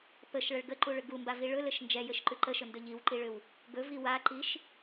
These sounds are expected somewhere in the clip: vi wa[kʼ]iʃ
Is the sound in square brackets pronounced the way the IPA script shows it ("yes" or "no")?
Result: no